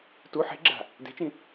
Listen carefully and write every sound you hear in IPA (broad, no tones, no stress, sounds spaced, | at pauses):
t u ħ e̤ ɡ͡ǁ a̤ | d e̤ t͡ʃ ĩ